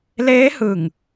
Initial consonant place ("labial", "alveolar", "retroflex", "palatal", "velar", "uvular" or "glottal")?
alveolar